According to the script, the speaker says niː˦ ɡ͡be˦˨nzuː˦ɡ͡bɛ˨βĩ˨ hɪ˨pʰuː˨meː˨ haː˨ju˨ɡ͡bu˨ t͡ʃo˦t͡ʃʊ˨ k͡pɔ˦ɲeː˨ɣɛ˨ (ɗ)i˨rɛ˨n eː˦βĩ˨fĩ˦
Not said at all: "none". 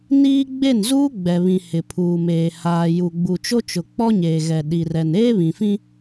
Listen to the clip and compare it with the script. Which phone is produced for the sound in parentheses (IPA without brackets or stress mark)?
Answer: ɗ